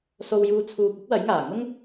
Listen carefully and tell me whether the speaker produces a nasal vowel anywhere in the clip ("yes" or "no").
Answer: no